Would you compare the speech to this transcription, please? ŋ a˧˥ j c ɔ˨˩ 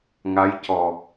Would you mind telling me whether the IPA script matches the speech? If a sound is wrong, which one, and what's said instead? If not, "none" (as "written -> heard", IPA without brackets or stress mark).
none